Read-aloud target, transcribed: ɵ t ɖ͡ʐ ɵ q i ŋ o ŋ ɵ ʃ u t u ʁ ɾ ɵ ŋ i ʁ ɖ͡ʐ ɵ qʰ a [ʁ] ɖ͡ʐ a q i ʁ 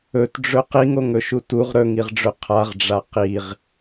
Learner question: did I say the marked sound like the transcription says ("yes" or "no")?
yes